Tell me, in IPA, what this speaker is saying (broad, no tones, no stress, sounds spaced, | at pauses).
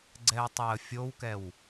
ɡ͡ǀ ɛ ə̯ tˤ ɛ ə̯ fʲ o w k ɛ w